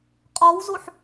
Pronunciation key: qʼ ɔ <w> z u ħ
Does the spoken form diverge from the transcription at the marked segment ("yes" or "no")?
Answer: no